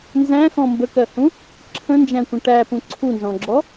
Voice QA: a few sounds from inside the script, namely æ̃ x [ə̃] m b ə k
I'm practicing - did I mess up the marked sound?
yes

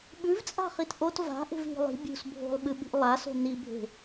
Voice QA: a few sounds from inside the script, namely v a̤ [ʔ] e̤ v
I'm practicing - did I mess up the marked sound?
no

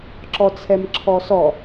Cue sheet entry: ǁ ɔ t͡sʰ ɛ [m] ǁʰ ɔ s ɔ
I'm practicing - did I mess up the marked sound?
no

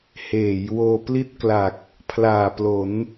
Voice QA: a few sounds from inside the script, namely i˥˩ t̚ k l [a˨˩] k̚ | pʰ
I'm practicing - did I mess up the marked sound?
no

